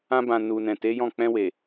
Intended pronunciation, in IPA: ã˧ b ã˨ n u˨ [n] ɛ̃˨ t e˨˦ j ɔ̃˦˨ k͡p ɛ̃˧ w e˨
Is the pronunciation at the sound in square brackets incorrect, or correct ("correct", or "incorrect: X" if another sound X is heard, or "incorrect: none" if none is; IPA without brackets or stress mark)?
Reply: correct